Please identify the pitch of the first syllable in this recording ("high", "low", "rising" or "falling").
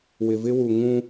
low